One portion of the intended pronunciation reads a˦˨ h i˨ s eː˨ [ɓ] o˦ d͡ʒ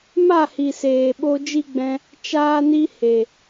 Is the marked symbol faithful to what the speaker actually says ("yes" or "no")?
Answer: yes